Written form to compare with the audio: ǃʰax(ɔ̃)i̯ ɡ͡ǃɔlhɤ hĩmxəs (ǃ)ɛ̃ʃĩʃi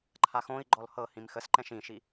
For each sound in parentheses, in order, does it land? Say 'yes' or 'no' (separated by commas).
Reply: no, yes